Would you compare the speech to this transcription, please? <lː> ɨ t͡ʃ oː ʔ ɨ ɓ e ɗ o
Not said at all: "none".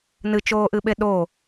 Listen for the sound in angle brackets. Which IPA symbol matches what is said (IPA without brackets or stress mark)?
n